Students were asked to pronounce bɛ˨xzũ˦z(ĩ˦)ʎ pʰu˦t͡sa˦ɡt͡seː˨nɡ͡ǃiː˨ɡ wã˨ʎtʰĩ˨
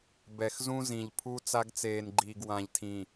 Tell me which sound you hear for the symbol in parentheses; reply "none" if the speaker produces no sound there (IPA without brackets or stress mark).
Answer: ĩ˨